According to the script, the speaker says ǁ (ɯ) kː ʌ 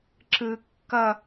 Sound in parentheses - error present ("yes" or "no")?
no